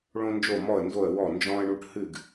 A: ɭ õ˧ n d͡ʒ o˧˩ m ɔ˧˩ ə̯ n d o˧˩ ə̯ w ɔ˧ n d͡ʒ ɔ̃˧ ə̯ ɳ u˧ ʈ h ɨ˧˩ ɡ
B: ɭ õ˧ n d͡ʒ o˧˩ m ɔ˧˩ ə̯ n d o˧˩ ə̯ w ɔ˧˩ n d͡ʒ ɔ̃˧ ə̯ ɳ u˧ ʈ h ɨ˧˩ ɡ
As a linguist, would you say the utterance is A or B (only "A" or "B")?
B